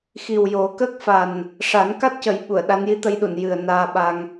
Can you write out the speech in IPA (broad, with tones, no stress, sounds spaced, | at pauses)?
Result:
x i˨˩ w j o˨˩˦ k ə˦˥ k̚ f a˨˩ n | ʂ a˨˩˦ n k a˦˥ t̚ c ə˨˩˦ j ɓ u˨˩˨ ə̯ ɗ a˧˥ n j i˧˥ t̪ ə˧ j ɗ u˨˩˨ n j ɨ˨˩ ə̯ n aː˧ ɓ a˧ ŋ